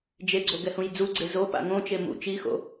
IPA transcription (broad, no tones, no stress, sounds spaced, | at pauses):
d͡ʒ e ɡ͡ǀ o ɡ ɛ h ũ j d͡z u ɡ͡ǀ e z o p a̰ ŋ õ t͡ʃ e m ṵ t͡ʃ i x o̰